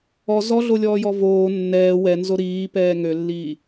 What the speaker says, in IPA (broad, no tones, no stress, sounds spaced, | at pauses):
ɔ z ɔ ɮ o lʲ ɔː j ɔ v oː nː ɛː w ɛ n z o ɾ iː p ɛː ŋ ø lː iː